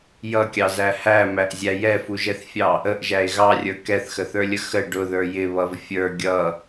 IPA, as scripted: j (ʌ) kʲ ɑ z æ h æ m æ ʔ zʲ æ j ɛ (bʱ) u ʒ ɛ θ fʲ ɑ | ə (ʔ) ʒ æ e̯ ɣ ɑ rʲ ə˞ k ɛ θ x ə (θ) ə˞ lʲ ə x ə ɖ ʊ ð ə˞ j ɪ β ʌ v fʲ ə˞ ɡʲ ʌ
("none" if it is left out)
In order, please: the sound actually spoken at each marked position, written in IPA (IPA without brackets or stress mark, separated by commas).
ʌ, f, ʔ, θ